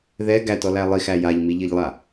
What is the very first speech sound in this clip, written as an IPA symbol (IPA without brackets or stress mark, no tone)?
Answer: ð